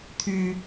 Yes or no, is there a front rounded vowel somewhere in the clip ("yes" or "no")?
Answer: yes